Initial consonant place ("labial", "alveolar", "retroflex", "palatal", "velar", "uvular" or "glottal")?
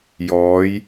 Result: palatal